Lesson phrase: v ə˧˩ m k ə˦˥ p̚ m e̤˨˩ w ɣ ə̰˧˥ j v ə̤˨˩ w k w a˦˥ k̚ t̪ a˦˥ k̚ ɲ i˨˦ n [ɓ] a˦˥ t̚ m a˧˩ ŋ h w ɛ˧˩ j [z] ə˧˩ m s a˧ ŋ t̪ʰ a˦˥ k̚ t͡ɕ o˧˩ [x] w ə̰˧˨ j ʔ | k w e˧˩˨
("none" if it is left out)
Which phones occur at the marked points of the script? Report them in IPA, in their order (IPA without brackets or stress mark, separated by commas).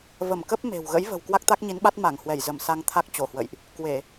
ɓ, z, h